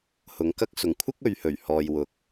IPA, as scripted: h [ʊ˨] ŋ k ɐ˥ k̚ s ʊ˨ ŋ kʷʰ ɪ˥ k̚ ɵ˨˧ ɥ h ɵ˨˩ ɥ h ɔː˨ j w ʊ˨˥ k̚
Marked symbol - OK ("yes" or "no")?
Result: yes